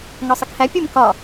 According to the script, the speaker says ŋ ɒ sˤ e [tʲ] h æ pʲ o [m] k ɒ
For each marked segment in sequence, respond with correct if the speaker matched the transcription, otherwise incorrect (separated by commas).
incorrect, correct